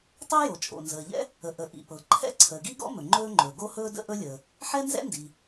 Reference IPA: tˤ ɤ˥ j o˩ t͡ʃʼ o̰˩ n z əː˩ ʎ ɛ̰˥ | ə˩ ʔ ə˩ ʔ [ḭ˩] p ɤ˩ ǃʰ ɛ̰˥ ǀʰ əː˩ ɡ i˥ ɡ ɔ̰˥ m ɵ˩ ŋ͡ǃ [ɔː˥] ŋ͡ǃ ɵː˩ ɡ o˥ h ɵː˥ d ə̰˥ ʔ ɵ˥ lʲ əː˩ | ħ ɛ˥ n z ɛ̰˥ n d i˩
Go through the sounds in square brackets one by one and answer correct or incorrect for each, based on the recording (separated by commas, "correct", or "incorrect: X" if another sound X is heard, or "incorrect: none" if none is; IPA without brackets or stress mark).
correct, incorrect: ɵː˥